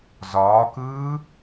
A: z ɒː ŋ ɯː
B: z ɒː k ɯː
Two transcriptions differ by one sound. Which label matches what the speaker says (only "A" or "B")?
B